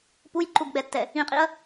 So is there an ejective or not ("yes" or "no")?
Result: yes